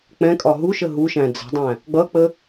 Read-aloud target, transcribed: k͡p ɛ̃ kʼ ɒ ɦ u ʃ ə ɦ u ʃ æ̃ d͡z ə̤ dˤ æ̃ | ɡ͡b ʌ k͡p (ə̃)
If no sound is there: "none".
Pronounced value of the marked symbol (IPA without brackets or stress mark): ə